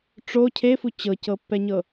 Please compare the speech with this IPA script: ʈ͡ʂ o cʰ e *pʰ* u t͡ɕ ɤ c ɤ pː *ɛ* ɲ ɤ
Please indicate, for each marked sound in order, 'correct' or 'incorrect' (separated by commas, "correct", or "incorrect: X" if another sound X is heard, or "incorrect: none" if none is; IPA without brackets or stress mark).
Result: incorrect: f, correct